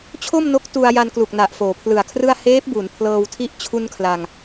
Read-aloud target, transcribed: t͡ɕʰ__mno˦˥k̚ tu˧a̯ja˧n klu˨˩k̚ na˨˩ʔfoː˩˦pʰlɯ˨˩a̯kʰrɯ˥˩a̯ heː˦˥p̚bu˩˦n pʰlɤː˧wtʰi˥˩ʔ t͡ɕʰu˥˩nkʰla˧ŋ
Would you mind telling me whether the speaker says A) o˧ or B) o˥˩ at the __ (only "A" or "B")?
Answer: B